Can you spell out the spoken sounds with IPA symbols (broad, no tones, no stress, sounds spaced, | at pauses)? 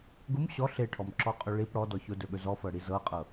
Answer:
ɡ ʊ m ɕ ɔ ɬ e ʈʰ ɔ m ǁ ɔ qʼ ɵ ɭ i p ɽ ɔ d ɔ ç ʊ d ɵ ɠ ɵ z ɔ f ɤ ɽ i z ɤ qʼ ɤ